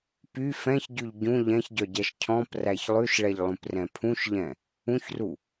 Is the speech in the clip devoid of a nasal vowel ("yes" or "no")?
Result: no